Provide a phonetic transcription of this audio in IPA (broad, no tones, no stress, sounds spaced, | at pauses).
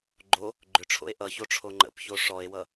ɡ͡ǃ o | ɡ͡ǃ ʏ ʈ͡ʂʰ o̰ e̯ ʔ ʌ ç o ʈ͡ʂʰ o ŋ͡ǃ ə̰ p ç o ʂ ɔ e̯ w ʌ